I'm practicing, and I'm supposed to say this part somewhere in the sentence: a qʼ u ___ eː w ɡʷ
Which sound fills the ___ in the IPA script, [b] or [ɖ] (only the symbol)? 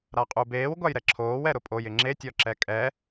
b